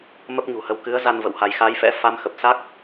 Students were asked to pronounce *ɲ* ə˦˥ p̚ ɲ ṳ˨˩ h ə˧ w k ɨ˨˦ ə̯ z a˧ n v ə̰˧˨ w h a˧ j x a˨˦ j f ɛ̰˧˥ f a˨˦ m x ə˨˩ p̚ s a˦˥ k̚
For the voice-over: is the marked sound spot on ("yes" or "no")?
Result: no